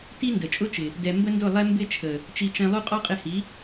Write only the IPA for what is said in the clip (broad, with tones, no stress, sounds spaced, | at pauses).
t i˦ n d ə˨ t͡ʃʼ ʊ˦ t͡ʃ ɪ˨ | d ɛ˧ m b ə˦ n d ʊ˦˨ lˠ ɛ˦ m b ɪ˦ t͡ʃʰ ə˨ | t͡ʃ i˧ t͡ʃ ɛ̃˧ lˠ u˦ qʼ ɔ˦ qʼ ɪ˧ h i˨˦